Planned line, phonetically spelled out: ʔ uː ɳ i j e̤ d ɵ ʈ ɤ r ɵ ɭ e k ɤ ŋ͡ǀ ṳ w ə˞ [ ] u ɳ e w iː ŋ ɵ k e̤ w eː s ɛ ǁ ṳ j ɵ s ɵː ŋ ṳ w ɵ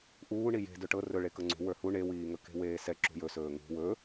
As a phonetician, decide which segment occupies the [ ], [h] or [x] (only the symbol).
h